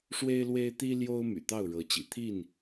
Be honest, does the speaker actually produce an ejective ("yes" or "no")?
no